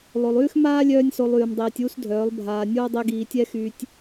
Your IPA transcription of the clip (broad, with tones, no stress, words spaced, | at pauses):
lˠo˨lˠyː˦xmaː˦ lʲœː˦nʲso˧lˠyː˨mdˤiː˨tʲ uː˦sdʱœː˨˦lˠ bʱaː˨nʲoː˦ dˤi˧ ɡiː˨tʲɛ˦xyː˧tʲ